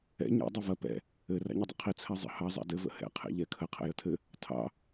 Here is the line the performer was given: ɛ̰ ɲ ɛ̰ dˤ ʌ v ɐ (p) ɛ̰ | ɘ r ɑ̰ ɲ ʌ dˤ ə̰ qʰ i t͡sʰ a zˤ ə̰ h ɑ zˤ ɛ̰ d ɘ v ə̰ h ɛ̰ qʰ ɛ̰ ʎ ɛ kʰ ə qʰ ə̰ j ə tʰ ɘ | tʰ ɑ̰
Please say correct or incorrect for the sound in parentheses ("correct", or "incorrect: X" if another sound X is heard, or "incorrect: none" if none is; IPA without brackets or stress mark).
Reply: correct